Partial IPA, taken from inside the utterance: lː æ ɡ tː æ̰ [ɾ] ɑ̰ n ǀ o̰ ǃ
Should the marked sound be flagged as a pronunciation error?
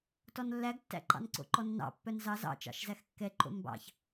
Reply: yes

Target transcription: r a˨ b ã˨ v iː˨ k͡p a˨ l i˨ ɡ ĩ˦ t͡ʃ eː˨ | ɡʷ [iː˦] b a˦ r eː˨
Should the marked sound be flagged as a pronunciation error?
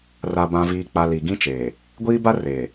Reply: no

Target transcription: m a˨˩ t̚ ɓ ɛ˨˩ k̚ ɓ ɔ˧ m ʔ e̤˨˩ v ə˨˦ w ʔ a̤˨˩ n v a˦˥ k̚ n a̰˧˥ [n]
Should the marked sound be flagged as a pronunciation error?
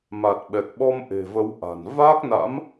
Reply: yes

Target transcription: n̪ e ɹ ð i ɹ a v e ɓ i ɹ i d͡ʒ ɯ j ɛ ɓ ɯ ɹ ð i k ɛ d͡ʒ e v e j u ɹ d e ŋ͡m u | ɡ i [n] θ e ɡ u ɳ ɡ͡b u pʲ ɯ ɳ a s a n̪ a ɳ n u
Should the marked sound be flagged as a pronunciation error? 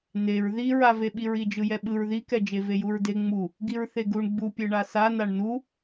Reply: yes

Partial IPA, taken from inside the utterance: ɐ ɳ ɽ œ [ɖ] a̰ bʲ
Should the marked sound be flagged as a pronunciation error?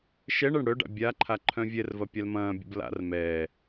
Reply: no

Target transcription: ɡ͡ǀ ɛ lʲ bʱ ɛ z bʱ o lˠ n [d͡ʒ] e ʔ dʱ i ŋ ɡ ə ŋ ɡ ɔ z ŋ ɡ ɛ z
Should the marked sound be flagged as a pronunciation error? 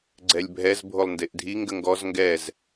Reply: yes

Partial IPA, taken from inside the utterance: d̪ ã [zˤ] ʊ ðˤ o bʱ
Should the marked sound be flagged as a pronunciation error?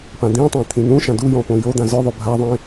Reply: yes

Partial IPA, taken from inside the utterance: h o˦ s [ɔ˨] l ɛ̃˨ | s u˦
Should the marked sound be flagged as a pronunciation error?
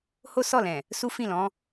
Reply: yes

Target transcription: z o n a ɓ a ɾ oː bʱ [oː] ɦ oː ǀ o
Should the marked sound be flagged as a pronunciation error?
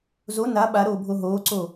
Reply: yes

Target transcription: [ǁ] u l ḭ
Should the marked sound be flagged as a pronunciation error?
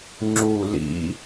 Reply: yes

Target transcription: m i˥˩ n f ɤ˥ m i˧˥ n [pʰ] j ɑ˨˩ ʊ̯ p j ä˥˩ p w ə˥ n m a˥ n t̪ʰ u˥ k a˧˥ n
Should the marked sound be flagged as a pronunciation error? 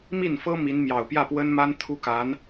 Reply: yes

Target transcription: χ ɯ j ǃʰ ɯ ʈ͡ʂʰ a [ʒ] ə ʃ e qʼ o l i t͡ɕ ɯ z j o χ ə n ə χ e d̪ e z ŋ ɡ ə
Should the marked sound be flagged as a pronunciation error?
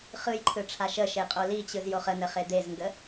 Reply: yes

